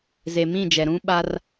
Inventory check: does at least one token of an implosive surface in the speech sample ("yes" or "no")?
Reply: yes